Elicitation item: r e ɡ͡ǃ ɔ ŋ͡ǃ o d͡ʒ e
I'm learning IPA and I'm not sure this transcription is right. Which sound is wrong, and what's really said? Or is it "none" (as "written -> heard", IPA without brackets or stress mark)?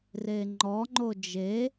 ɡ͡ǃ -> ŋ͡ǃ